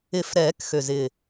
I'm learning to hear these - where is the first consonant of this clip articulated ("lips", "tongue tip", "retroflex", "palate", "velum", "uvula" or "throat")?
lips